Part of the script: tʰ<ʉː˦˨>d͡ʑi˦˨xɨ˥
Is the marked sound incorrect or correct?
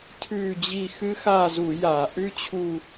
correct